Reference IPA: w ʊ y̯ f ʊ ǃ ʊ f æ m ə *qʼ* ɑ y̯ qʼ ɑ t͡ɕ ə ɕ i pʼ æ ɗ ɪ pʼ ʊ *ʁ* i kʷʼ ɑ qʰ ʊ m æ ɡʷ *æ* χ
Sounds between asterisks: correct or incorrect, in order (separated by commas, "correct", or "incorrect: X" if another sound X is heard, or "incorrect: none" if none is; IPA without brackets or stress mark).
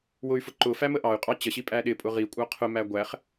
incorrect: ʔ, correct, correct